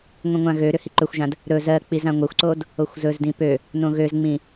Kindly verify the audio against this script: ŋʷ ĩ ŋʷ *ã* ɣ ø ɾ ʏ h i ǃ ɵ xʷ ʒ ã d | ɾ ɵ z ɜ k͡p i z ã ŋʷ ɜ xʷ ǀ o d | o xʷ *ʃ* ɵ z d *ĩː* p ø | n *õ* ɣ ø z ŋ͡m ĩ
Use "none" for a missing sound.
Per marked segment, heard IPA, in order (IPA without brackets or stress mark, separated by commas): ã, z, ĩ, õ